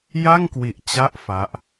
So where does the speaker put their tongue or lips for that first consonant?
palate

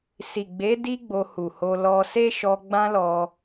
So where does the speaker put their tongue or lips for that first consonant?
tongue tip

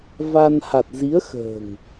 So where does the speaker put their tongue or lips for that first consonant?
lips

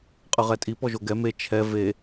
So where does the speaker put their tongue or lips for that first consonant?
uvula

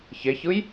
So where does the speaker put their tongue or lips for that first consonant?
palate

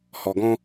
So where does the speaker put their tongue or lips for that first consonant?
throat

